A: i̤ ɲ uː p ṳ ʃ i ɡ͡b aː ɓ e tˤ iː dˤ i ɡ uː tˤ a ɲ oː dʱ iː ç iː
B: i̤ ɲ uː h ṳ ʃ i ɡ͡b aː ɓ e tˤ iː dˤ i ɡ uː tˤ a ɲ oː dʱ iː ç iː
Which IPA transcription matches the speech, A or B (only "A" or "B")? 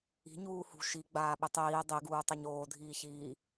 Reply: B